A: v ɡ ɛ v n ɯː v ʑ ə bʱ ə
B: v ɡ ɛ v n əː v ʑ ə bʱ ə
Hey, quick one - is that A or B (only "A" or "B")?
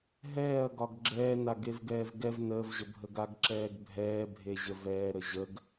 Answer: B